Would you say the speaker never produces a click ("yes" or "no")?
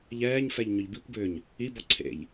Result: no